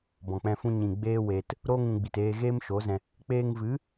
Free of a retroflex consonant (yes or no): yes